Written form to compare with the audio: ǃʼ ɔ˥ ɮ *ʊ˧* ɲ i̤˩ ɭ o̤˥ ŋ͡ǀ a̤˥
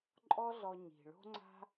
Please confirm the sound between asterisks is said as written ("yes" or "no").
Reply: no